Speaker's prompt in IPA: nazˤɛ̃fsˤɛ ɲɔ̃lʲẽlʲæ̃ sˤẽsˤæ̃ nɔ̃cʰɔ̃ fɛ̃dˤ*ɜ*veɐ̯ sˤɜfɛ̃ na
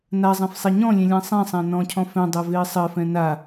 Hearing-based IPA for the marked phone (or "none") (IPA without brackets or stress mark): æ